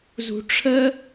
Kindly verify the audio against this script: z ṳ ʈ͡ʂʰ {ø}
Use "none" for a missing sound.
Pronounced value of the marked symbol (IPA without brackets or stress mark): ə